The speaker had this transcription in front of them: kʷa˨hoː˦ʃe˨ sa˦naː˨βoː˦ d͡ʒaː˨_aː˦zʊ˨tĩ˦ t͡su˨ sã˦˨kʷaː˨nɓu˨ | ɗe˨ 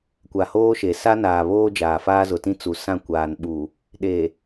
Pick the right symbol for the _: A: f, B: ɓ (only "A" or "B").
A